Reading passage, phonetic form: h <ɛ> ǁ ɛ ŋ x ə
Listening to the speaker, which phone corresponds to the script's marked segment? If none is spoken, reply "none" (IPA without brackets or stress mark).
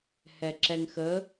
ɛ